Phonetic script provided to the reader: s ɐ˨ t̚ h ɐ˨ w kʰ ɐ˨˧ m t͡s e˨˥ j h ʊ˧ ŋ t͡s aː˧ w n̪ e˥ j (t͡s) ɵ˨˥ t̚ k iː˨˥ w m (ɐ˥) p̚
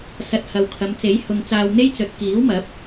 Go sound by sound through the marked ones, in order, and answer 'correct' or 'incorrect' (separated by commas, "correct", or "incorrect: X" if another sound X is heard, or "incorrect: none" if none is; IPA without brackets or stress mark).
correct, incorrect: ɐ˨˥